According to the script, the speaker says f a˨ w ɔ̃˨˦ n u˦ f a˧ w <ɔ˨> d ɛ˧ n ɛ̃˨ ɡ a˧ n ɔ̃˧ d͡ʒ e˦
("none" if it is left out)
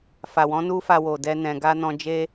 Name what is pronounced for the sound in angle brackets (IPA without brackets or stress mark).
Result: o˨